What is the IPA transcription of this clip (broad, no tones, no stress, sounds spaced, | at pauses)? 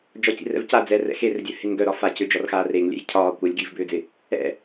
d͡ʒ ɒ c ḭ r ɛ̰ v c a d͡z ɛ r ɛ̰ x e r dʲ œ h ɪ ŋ ɡ œ ɾ ɒ f a c ʏ d͡ʒ ɒ r x aː r e ŋ lʲ ɛ̰ j cʰ ɒː kʷ œ lʲ ɡ iː v b ʏː d͡z ɪ | ɛ̰